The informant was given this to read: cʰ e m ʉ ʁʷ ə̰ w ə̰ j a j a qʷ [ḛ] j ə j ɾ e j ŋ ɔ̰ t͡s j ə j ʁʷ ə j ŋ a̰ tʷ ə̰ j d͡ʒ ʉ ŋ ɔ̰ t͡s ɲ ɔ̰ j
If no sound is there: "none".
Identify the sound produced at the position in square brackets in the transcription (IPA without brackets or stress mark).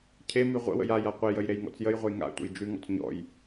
e